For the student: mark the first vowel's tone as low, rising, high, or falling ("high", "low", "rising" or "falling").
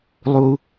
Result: low